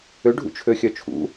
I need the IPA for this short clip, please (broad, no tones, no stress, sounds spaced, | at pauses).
ø ɖʱ ṵ t͡ʃʰ ø xʲ œ t͡ʃʰ ṵ